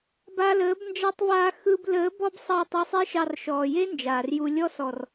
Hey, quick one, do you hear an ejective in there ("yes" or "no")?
no